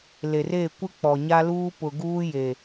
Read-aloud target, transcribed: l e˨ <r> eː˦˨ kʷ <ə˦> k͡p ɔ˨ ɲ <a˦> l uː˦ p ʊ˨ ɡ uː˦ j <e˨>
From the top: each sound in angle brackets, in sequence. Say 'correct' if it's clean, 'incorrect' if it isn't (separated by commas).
correct, incorrect, correct, correct